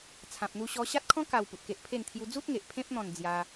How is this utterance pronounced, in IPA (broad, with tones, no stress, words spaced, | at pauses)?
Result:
t͡sʰã˨p̚n̪u˧ɕɔ˧ ɕa˦t̚kʰɔ̃˦ ka˧w pu˨t̚ke˦ʔpʰe˥˧nt̪ʰju˦ d͡zu˦t̚ŋe˨ʔ pʰẽ˦p̚n̪ɔ̃˧n d͡zja˦